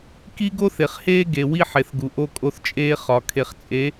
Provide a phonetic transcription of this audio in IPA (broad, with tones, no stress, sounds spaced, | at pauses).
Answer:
k i˦ ɡ o˦ θ e˨ χ h eː˦ ɡ e˨ w i˦ ħ e˨ θ ɡ u˨ ʔ o˦ kʼ o˦ θ t͡ʃʼ eː˦ χ ɒ˨ kʰ e˨ χ t͡sʼ e˨˦